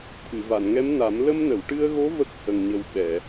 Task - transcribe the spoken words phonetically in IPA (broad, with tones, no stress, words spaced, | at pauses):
t̪ʰɨ˨˩˨va˨˩˨nŋɛ˧˥mna˨˩˦m lə˧mnə˨˩˨wʈɨ˧ə̯ɣo˧˥ və˦˥k̚hə˨˩ŋɲə˨˩w ɓɛ˨˩˨